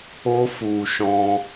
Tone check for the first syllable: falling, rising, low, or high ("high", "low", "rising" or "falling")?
high